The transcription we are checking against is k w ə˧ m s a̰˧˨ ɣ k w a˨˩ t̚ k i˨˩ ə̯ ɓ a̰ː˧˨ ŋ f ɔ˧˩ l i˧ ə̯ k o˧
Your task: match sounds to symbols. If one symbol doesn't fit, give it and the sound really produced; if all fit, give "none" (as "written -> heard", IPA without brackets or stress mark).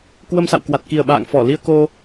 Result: ɣ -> w